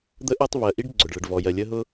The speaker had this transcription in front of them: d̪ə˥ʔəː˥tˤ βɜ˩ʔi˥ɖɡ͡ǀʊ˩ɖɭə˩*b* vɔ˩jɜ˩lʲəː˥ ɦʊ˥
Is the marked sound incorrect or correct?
incorrect